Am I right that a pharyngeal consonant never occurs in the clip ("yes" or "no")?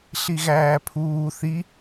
yes